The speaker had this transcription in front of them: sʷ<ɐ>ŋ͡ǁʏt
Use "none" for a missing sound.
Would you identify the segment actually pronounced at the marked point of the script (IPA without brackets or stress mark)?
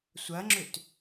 ɐ